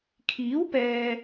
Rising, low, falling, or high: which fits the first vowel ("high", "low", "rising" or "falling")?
rising